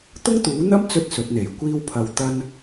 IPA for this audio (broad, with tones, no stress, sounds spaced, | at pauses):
t̪ ʊ˥ ŋ t̪ uː˨˥ n̪ ɐ˥ m t͡s ɵ˥ t̚ s ɵ˨˥ t̚ n̪ e˨˩ j kʷ iː˥ w pʰ ɐ˧ w t̪ ɐ˥ n